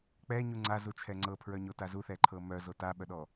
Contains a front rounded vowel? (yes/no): yes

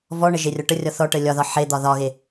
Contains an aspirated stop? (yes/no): no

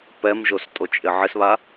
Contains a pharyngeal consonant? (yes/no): yes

